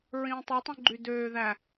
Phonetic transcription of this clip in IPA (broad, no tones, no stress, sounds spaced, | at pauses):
ɹ ĩː tˤ ø tˤ ũ ɡ͡ǃ y d øː ð æ